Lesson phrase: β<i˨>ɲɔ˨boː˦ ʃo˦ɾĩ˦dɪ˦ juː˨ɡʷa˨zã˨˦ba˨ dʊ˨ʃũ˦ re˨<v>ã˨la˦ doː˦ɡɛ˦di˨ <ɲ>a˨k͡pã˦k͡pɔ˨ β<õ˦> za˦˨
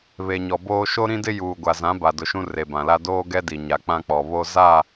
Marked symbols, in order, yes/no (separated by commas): no, no, yes, no